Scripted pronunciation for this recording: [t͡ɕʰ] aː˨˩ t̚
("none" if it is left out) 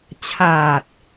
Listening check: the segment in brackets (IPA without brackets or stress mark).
t͡ɕʰ